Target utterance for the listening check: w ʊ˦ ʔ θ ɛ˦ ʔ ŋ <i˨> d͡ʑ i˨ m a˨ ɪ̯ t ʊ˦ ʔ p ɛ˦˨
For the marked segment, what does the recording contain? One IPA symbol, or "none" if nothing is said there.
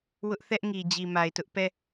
i˨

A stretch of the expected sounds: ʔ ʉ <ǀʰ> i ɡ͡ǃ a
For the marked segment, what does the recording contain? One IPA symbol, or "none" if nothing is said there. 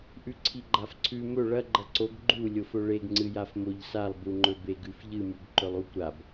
ǀʰ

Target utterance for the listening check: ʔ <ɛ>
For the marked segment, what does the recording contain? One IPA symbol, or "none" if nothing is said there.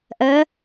ɜ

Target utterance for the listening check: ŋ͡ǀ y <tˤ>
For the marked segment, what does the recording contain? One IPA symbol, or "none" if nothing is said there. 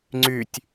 tʲ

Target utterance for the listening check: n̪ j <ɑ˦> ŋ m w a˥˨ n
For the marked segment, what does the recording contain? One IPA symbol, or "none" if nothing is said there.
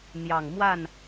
ɑ˨˩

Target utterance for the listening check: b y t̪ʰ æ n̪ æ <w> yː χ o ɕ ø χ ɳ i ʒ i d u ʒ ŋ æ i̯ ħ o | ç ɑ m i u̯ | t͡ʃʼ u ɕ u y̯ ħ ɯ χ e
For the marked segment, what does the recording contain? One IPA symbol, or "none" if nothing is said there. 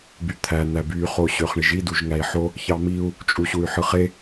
b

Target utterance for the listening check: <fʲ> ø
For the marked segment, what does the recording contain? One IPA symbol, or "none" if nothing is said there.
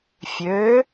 fʲ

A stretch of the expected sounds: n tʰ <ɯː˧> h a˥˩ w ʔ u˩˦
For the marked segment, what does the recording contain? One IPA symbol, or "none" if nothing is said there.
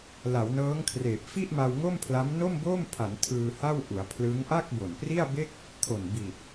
ɯː˧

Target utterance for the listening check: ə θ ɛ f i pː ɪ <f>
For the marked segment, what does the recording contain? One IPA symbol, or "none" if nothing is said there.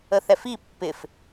f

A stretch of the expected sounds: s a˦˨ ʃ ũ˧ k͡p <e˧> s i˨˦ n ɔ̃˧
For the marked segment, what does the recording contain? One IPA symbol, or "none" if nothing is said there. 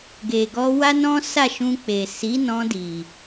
e˨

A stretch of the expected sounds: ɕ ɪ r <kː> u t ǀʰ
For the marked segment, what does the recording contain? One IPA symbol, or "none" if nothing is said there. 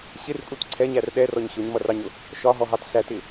kʼ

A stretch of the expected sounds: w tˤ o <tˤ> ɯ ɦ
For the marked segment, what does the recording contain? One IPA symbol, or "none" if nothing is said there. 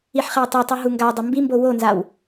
tˤ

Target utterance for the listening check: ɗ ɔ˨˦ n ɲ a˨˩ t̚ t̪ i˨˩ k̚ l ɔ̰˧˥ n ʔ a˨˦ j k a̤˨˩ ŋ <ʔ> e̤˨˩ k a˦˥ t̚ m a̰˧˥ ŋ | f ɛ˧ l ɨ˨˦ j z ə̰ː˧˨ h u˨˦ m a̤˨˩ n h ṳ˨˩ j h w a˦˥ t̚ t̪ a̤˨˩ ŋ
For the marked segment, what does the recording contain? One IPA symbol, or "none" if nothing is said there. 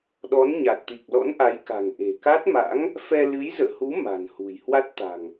ʔ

